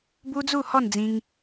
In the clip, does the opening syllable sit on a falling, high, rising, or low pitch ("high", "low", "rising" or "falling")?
high